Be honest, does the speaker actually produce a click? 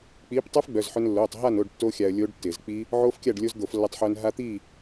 no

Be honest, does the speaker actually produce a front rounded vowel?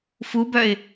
yes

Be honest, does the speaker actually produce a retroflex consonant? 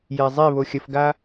no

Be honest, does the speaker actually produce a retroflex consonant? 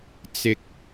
no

